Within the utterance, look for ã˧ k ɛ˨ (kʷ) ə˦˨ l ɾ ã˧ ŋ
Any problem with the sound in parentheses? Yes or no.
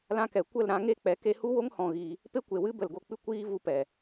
no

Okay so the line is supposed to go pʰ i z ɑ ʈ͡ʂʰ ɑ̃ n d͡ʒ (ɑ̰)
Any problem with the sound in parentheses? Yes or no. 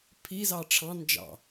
no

